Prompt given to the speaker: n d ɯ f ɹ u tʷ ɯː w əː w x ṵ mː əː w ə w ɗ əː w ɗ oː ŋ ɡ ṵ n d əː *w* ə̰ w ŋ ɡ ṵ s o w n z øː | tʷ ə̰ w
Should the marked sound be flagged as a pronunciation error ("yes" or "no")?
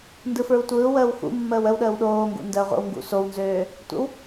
yes